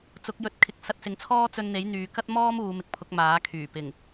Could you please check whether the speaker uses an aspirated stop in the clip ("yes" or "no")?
yes